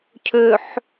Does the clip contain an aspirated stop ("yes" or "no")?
yes